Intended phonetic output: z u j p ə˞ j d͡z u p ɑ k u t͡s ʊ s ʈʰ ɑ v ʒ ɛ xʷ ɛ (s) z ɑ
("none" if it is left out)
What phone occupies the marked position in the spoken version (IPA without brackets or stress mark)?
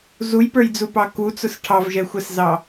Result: s